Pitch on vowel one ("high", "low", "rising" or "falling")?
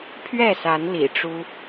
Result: falling